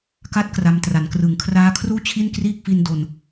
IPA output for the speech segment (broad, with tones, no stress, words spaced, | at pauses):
ka˦˥t̚ kra˦˥mtra˩˦n krɯ˨˩ŋkʰraː˦˥kʰruː˥˩t͡ɕʰi˥˩n kriː˥˩k̚fi˧ndo˨˩n